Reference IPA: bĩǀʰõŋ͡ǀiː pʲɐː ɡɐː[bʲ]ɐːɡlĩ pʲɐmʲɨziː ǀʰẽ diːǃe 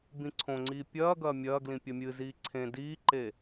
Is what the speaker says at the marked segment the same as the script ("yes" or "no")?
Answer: no